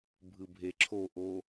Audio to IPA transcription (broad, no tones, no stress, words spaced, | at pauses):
bʱɯbʱeǁʰoʔo